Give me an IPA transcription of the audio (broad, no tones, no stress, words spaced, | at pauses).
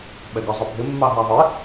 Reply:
ɓɛɡɔzˤɪbʱɪ mːɑɦæðˤɪ